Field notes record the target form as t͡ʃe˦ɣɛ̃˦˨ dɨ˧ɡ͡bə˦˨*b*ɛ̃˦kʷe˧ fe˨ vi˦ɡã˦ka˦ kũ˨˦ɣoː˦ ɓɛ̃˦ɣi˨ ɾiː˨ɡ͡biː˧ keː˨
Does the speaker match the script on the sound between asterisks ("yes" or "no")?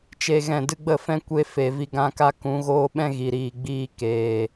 no